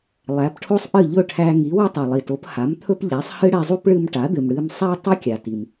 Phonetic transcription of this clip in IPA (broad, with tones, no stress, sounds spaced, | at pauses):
lˠ æ˩˥ p ʈʰ o˥ sˤ ʔ ɨ˥˩ ʎ ɵ˥˩ ʈʰ æ˧ ŋ i˩˥ w ɨ˥ tˤ i˩ lˠ i˩ t o˩˥ p h a˩˥ m t̪ʰ ɵ˥ p ʎ æ˩˥ sˤ h ɨ˥ ɽ ɛ˧ zˤ u˥ p ɭ ɨ˧ m ʈ a˩˥ d̪ ɨ˩ m ɽ ɨ˧ m sˤ æ˥ tˤ ɨ˥ kʲ a˩ t i˩ m